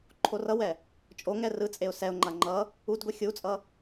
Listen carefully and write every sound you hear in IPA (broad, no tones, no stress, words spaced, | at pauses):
ǃʰorʌwɛ | t͡ʃʼoŋɛ rɯt͡sʼeʊ̯ sɛʊ̯ŋ͡ǃa ŋ͡ǃʌ | udɡʷi xʲut͡sʼʌ